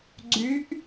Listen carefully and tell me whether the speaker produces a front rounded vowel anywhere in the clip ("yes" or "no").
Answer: yes